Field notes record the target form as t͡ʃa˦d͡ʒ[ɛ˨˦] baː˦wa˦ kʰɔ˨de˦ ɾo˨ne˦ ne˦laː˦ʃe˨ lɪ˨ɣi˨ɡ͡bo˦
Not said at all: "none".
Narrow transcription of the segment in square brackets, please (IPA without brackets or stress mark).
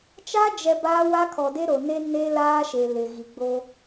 ɛ˨